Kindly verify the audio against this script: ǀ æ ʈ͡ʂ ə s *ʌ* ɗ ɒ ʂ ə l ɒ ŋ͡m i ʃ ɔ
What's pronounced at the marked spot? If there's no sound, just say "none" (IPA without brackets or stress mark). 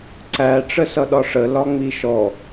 ʌ